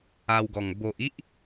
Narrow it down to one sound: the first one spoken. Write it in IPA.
a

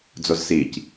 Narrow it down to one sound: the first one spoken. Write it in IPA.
d͡z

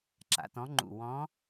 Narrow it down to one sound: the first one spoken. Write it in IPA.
ǁ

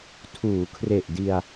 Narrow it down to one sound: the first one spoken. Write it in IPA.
tʰ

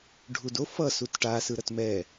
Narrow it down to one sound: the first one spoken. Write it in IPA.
ɖʱ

